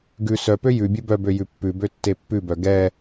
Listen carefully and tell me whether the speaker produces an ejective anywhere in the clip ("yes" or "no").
no